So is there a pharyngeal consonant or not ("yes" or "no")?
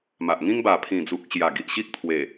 no